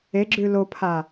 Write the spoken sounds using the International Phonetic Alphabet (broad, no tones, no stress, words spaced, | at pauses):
eɡ͡ǁʉ lopʰa